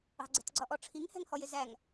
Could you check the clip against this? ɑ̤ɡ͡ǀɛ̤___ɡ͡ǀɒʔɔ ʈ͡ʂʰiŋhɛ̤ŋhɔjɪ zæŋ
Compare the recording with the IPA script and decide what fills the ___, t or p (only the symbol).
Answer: t